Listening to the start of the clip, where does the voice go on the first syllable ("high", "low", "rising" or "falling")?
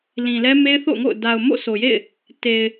low